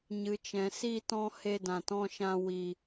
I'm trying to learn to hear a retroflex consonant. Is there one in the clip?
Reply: no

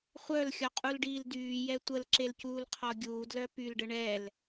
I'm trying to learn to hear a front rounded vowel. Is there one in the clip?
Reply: yes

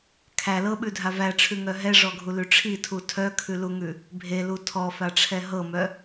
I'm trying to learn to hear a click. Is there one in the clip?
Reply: no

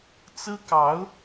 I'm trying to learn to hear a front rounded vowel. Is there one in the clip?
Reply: no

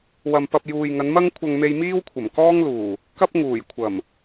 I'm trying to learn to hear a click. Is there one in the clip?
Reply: no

